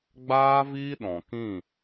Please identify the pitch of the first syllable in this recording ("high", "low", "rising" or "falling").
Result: high